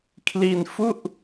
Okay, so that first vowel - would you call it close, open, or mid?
close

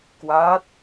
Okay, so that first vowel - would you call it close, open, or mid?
open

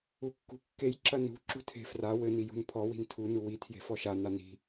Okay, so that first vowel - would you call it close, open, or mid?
close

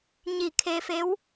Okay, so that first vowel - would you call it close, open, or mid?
close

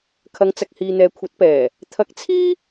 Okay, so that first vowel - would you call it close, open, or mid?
open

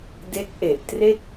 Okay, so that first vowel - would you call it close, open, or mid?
mid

